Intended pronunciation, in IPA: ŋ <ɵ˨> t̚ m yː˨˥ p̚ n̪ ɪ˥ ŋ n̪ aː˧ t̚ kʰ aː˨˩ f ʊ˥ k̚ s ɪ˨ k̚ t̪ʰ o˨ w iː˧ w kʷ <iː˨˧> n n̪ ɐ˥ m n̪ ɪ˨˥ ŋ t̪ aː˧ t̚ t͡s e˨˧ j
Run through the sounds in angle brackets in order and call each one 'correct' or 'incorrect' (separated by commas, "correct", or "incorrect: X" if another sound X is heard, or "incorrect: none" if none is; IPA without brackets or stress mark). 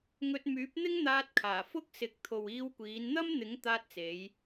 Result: incorrect: ɵ˧, correct